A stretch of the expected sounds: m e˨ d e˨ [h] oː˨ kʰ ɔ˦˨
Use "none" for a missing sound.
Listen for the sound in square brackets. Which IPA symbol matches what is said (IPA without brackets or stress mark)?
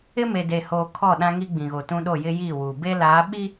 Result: h